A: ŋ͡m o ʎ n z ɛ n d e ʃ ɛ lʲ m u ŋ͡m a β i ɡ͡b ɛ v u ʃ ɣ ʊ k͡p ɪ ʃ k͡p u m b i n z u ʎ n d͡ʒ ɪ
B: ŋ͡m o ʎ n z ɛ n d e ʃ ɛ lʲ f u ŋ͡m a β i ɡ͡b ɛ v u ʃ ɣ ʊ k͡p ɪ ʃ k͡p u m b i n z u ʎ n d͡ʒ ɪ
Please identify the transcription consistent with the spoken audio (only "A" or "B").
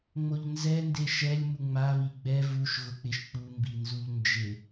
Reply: A